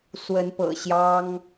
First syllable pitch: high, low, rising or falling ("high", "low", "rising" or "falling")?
rising